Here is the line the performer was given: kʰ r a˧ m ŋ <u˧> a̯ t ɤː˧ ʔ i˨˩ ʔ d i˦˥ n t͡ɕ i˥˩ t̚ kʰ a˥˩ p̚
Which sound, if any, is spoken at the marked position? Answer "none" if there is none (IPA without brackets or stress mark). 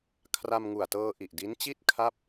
u˨˩